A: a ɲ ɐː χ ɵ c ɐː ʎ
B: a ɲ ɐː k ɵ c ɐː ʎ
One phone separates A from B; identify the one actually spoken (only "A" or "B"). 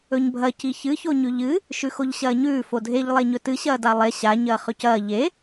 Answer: A